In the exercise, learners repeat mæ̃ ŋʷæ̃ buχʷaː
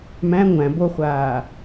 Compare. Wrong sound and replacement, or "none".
u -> o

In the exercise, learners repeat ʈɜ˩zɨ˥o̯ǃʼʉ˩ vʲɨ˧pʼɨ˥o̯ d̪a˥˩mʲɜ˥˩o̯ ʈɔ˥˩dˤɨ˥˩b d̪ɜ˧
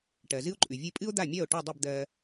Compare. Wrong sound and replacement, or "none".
none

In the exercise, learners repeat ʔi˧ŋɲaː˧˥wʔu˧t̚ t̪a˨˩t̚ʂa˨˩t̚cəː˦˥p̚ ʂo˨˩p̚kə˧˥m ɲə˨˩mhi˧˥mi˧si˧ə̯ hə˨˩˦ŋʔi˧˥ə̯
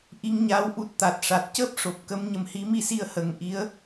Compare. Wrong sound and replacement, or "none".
u˧ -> u˨˩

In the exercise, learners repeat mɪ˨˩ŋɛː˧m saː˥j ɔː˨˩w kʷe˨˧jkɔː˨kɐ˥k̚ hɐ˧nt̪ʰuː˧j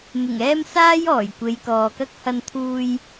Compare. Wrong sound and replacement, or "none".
w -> j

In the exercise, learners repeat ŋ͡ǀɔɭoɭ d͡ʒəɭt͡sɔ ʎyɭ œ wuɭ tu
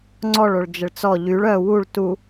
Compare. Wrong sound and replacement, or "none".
none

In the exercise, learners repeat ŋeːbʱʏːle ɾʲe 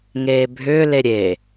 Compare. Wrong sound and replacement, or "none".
none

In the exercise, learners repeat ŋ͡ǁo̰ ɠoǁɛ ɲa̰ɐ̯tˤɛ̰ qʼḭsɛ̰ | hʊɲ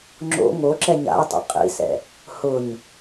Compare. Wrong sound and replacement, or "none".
ɠ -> ŋ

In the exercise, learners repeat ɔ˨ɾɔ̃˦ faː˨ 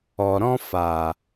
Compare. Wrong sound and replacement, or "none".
none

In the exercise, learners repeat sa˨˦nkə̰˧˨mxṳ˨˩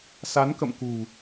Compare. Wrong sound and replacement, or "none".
x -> k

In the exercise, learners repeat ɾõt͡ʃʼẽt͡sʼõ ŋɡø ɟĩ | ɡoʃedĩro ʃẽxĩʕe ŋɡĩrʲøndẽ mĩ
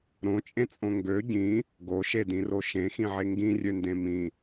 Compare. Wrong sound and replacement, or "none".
none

